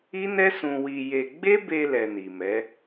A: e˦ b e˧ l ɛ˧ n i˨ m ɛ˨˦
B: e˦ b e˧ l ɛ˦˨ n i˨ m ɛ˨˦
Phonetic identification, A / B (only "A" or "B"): A